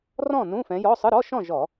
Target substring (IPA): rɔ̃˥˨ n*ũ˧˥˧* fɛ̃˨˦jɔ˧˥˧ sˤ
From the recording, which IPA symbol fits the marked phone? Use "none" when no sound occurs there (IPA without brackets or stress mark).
ũ˧˥˧